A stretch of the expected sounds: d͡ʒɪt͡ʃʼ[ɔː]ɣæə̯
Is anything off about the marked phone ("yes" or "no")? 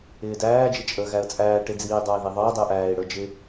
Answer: yes